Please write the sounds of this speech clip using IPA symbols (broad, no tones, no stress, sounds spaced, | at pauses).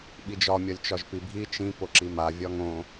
ɓ i d͡ʒ ɒ mʲ ɒ lʲ t͡ʃ ɒ ʒ p i bʱ i t͡ʃ ĩ p o ǁ i m a vʲ ɒ ŋ õ